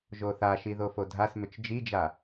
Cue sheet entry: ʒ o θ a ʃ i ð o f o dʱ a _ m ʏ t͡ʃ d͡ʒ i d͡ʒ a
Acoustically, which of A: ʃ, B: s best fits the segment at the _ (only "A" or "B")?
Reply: B